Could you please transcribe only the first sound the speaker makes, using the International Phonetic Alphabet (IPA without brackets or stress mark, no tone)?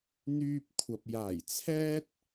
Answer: n̪